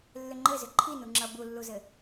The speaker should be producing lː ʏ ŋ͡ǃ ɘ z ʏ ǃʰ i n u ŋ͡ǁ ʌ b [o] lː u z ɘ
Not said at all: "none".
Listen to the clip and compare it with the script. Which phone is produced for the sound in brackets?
u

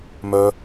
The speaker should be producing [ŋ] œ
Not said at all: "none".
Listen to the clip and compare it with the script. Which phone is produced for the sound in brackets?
m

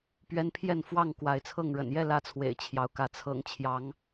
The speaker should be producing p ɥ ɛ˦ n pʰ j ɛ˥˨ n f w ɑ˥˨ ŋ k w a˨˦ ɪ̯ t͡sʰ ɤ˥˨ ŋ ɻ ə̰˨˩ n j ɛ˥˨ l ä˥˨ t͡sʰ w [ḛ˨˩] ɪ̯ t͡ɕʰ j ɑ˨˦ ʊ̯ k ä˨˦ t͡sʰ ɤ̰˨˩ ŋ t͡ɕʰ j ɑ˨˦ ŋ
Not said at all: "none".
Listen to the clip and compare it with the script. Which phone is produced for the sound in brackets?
ḛ˨˩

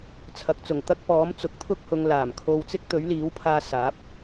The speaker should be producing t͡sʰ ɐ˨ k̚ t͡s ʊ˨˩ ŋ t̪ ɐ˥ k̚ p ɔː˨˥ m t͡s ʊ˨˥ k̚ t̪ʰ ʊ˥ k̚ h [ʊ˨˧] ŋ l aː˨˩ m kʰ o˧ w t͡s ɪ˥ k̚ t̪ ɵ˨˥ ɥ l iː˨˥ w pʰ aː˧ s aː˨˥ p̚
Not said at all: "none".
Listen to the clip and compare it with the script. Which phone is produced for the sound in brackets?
ʊ˨˧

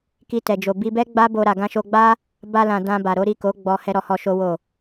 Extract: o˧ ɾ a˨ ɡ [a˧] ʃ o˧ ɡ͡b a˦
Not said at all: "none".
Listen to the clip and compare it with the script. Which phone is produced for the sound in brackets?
ã˧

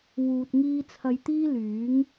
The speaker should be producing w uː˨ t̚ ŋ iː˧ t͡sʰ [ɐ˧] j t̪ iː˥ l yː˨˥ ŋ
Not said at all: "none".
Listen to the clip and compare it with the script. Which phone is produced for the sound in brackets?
ɐ˧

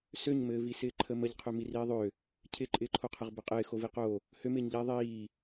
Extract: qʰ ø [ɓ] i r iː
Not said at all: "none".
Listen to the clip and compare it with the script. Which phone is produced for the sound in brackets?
m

